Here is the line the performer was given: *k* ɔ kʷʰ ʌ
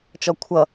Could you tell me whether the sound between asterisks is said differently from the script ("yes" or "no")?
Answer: yes